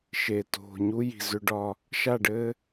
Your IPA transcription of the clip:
ʃ e˨ t o̤˨ ɲ u˦ j i̤˨ z ʏ˦ ɖ ɒ˦ | ʃ a˦˨ ɖ ɘː˦

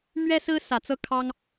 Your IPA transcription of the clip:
m ɥ ɛ˥ s ɹ̩˥ s ä˨˩ t͡s ɤ˥˩ kʰ ɑ˥ ŋ

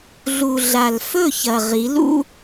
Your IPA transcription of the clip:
ɮ u˨ ɮ a˨ l f ɵ˦˨ ç ɐ˨ ʁ i˨˦ l ṵ˦

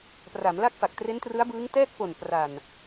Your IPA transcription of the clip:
p r a˩˦ m l a˥˩ k̚ f a˨˩ k̚ t r e˦˥ n t r ɯ˦˥ a̯ b ɯː˦˥ ŋ t ɛː˥˩ k̚ p o˨˩ n p r a˨˩ n

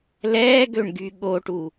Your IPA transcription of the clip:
l ɛː ɡ ø ɳ ɡ y ɠ o ʈ u

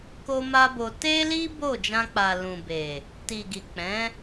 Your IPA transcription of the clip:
k o˦ m a˦ b o˧ t e˦ l i˦ b o˦˨ d͡ʒ ã˧ k͡p a˨ l ũ˨ b e˨ | t i˨ ɡ i˨ k͡p ɛ̃˨˦

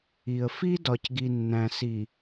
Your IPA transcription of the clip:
i˨ ə̯ f i˦ d ɒ˨ c ɡ i˨ nː æ̃˨ s i˨

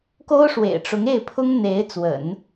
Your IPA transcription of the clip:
k o˥ ʊ̯ ʂ w ḛ˨˩ ɪ̯ ʈ͡ʂ ʊ˧˥ ŋ e˥˩ ɪ̯ pʰ ʊ˥ ŋ n̪ e˧˥ ɪ̯ t͡s w ə̰˨˩˦ n

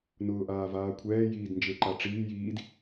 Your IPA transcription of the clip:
n ʊː ʔ aː v aː kʷʰ ɛː j iː d n d͡ʒ e ǃ a ʈ͡ʂ iː j iː d

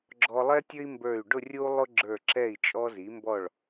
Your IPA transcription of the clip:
ɡ͡ǁ ɔ˧ lˠ ɛ˥ tʲ ɵ˥ i̯ m b ə˞˧˩ y̯ ɖ ʊ˥˧ rʲ u˥ lˠ ʊ˥ ɡ͡ǁ ə˞˧˩ ǁ ɛ˧˩ i̯ t͡ʃʼ ɔ˧ z i˩˧ m b ɔ˧˩ ɭ

